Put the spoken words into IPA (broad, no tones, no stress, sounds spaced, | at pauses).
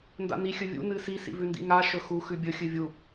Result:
n d a̰ n i xʲ ɵ vʲ ṵ n ɨ s i s ḭ v ʉ n d ḭ ŋ a ʃ ɵ x u x ʉ bʲ ɵ xʲ ɨ vʲ u